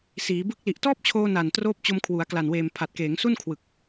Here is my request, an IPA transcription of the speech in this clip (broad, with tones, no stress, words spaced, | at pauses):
siː˩˦bɯ˦˥k̚ li˨˩ʔtɔː˥˩p̚t͡ɕʰoː˧ na˨˩n troː˦˥p̚t͡ɕo˧mkʰwu˩˦a̯ kla˨˩nweː˨˩m pʰa˨˩t̚keː˩˦ŋsu˥˩n kʰwɯ˨˩k̚